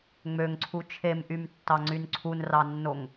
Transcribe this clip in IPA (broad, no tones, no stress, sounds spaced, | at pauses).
ŋ͡m ø ŋ ǀʰ u t͡ʃʰ e m ʔ y m tː ɑ ŋ͡ǀ y n ǀʰ u n r ɑ nː o ŋ